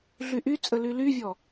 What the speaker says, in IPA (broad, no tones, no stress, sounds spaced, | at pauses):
ɮ y ʔ y t͡sʼ ə l y l y vʲ ɔ